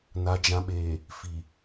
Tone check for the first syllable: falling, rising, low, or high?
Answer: low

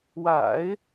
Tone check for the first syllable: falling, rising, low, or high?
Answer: low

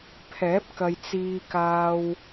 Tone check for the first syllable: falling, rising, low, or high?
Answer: rising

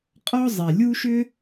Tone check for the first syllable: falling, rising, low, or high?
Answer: high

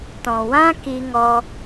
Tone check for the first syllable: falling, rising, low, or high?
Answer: low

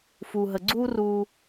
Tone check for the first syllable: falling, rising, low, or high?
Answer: low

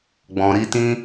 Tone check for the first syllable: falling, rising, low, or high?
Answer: low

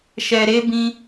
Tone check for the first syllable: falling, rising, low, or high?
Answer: low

